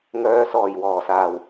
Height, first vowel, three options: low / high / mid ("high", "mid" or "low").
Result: mid